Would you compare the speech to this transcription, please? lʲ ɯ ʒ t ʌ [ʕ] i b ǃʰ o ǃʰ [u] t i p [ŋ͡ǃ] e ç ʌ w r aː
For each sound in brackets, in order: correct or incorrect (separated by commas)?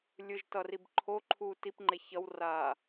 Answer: incorrect, incorrect, correct